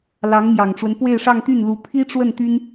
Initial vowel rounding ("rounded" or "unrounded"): unrounded